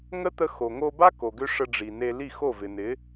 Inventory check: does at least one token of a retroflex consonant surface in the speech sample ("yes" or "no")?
yes